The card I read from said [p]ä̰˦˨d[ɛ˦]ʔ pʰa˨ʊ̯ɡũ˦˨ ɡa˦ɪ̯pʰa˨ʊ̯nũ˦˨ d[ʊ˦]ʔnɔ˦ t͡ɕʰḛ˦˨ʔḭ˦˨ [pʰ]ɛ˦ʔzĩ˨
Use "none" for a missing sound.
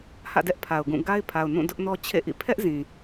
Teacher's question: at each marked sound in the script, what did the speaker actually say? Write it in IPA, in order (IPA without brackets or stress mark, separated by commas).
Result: h, ɛ˦, ʊ˦, pʰ